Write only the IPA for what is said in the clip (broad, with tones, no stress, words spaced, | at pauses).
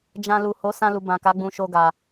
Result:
d͡ʒã˧ lu˨ ho˨˦sã˧ lu˨bã˨ka˨˦ ɡ͡bũ˧ʃo˧ ɡa˨